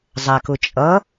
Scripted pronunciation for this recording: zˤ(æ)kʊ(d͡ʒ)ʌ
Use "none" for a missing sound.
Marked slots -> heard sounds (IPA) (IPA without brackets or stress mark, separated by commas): æ, t͡ʃʼ